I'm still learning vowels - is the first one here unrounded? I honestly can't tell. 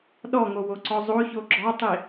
no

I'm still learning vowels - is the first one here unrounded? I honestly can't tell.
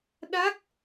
yes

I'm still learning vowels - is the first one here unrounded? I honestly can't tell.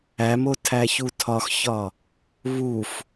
yes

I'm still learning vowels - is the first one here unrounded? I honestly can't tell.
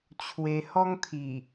yes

